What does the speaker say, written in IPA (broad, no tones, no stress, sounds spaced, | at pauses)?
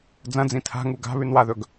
d͡z ɐ̃ d͡z ĩ tʰ a̤ ŋ u ɡ a̤ β ʉ n w a ð ɵ ɡ